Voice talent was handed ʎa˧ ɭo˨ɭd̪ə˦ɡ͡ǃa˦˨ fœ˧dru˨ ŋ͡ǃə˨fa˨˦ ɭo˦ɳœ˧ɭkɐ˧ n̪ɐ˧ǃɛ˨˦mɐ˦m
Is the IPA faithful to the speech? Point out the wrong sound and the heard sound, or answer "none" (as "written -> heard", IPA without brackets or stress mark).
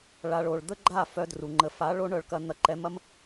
ʎ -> ɭ